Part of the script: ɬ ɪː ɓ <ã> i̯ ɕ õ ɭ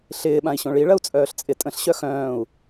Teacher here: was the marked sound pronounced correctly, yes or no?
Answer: yes